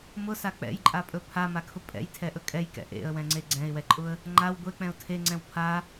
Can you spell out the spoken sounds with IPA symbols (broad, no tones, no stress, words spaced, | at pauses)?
mʊsa k͡pɛ̰jǃʼapʼɵ pʰamakʰʊ pʼɛ̰jtʰɛʔɵ kʼɛjkɛ̰ ʔḛə̯wɛ̃ŋ͡ǀe ɡ͡ǀɛ̃ɪ̯wɛǃʼʊə̯ | ŋ͡ǃaw ɡʷek͡pɛ̃ʊ̯ tʰeŋ͡ǀɛ̃w pʰa